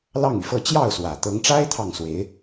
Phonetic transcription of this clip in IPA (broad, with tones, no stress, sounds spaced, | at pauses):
l ɑ˥˩ ŋ y˩ f ɤ˥˧ t͡ɕ j ɑ˥˩ ʊ̯ s w ä˨˩ t̪ ɤ˧˥ ŋ ʈ͡ʂ a˥ ɪ̯ t̪ʰ ɑ˥˩ ŋ s w e˧˥ ɪ̯